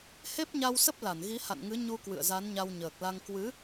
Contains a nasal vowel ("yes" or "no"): no